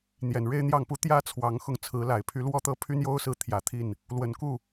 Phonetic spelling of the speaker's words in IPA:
n̪ j ɛ˨˩ n ɻ e˥ ɪ̯ n̪ j ɑ˥˩ ŋ p u˥ t̪ j ä˥ t͡sʰ w ɑ˧˥ ŋ x ʊ˥˩ ŋ t͡sʰ ɹ̩˧˥ l a˨˩ ɪ̯ pʰ y˧˥ l w ɔ˥ t̪ ɤ˥˩ pʰ y˥ n j o˥ ʊ̯ s ɹ̩˥˩ t̪ʰ j ä˨˩ t̪ʰ i˥˩ n | l w ə˨˩ n k u˥˩

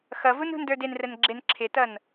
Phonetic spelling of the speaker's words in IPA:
x ʌ v u n ṳ n d ə˞ d ɪ n r ə n ɡ͡ǁ ɪ n ǁʰ ɪ t ʌ n

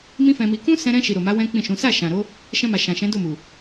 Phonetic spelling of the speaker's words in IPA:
m ĩ˦ f ɛ̃˧ m i˧ k ũ˦ s ɛ̃˧ ɾ ɛ̃˧ ʃ i˨ ɾ o˨ m a˨˦ w ɛ̃˦ k͡p ĩ˦˨ ʃ ũ˨˦ s a˦˨ ʃ ã˨ ɾ o˨˦ | ʃ ɛ̃˧ m a˨ ʃ ã˨ ʃ ɛ̃˨˦ d o˦˨ m u˨

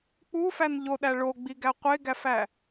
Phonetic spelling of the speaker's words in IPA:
k͡p u f æ n ʎ o ɗ æ ɭ o ɡ͡b i ɡ æ qʷ e ɡ æ f æ

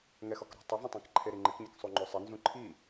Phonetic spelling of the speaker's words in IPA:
ŋ ɛ x ɔ k ɾ o̤ tˤ ɪ v õ tˤ ã k ǃʰ e ɾ i ŋ͡ǃ ɪ k ɲ ɪ k sˤ u ŋ͡ǃ o sˤ ɪ n z ũ ǃʰ i

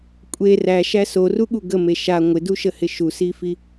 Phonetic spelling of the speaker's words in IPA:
kʷʼ e r æ ʃ æ s o r u ɠ u ɡ ə m e ʃ a ŋʷ ɪ d u ʃ ə h ɪ ʃ u s i f i

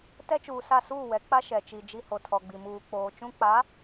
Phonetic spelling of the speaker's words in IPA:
t ɛ˦ t͡ʃ uː˨ s a˦˨ s uː˦˨ w ɛ˨˦ k͡p a˦ ʃ ɛ˨ t͡ʃ i˨ d͡ʒ i˦ h o˨ tʰ ɔ˨ ɡ͡b i˨ m uː˨ k͡p oː˨ t͡ʃ ũ˦ k͡p a˨˦

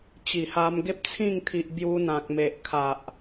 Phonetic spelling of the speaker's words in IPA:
t͡ɕ i˨˩ h a˧ m ɡ e˦ p̚ t͡sʰ ĩ˥˧ ŋ t̪ʰ i˨ ʔ b j u˧ n̪ ã˨ k̚ m e˨ ʔ kʰ a˨ ʔ

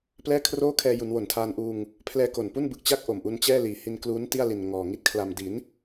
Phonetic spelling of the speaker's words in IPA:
p l ɛː˥˩ kʰ r oː˥˩ kʰ ɛː˧ j u˩˦ n w o˨˩ n tʰ aː˧ n ʔ uː˧ ŋ | pʰ l ɛː˧ k o˨˩ n p u˥˩ n b ɯ˨˩ k̚ t͡ɕ a˥˩ k̚ ʔ o˨˩ m ʔ u˧ n t͡ɕ ɛː˥˩ l iː˨˩ h i˧ n k l uː˦˥ n t i˥˩ a̯ l i˨˩ n ŋ ɔː˨˩ ŋ i˥˩ t̚ kʰ l a˧ m d i˩˦ n

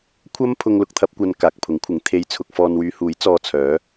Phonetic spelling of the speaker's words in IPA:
kʷʰ ɐ˥ m pʰ ʊ˧ ŋ l ʊ˧ k̚ t̪ʰ ɐ˥ p̚ kʷ ɐ˧ n k aː˨ k̚ pʰ ʊ˨˥ ŋ kʷʰ ɪ˨˥ ŋ t̪ʰ e˧ j t͡sʰ ʊ˧ k̚ f ɔː˧ n w yː˨˧ h uː˨˥ j t͡s ɔː˧ t͡sʰ œː˨˥

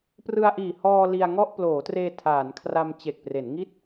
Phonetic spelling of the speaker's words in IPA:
p r ɯ˧ a̯ ʔ iː˨˩ h ɔː˧ l i˧ a̯ ŋ ɔ˥˩ ʔ p l oː˩˦ t r eː˧ tʰ aː˩˦ n kʰ r a˧ m t͡ɕ e˨˩ k̚ p r e˩˦ n ŋ i˥˩ t̚

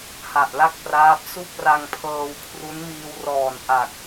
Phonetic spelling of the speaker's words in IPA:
h a˨˩ ʔ l a˥˩ k̚ p r aː˦˥ p̚ s u˥˩ k̚ r a˧ ŋ pʰ ɤː˧ w kʰ r u˦˥ n m iː˧ w r ɔː˨˩ n ʔ a˨˩ k̚

